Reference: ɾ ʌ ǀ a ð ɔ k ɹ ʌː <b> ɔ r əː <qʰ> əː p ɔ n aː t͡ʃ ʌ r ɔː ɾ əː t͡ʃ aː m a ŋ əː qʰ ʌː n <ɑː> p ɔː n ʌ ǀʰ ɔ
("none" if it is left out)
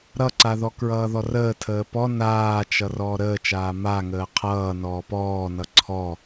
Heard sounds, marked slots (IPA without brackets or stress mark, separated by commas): ð, tʰ, ɔː